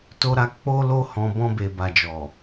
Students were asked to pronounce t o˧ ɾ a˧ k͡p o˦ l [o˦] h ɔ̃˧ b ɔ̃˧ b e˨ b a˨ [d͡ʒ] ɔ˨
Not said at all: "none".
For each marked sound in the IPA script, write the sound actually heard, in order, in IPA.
o˦, d͡ʒ

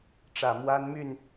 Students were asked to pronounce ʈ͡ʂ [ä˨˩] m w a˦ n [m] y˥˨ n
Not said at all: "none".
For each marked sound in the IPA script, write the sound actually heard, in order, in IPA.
ä˨˩, m

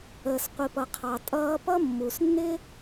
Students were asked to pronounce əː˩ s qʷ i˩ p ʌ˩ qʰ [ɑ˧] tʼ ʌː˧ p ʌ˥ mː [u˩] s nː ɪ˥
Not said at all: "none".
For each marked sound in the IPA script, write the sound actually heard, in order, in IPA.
ɑ˩, u˩

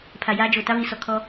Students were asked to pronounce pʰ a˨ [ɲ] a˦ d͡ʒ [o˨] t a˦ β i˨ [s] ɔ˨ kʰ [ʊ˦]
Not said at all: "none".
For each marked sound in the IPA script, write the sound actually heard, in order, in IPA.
j, o˨, s, ɔ˦

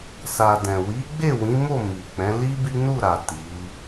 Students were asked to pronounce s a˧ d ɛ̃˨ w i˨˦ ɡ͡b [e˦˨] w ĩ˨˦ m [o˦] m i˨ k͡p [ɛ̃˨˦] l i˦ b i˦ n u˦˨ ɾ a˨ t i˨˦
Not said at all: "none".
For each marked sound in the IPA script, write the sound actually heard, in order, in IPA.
e˦˨, o˦˨, ɛ̃˨˦

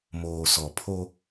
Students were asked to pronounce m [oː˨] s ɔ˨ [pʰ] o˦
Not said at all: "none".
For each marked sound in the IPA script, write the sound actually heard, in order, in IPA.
oː˨, pʰ

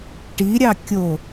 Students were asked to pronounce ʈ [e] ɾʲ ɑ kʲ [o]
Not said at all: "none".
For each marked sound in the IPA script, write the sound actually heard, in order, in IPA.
i, o

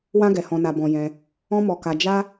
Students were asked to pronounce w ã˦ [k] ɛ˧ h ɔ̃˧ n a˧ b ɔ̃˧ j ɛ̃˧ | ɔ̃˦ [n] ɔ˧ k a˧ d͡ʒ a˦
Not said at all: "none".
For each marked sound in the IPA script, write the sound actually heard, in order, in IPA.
ɡ, m

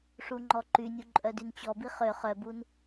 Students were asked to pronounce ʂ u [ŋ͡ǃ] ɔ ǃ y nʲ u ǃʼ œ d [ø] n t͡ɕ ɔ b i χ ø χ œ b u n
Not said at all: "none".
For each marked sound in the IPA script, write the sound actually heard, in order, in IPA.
ŋ͡ǃ, y

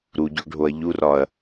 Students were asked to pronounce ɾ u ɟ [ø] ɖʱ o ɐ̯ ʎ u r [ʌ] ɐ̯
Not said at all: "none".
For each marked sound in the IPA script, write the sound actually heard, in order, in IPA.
ø, ɒ

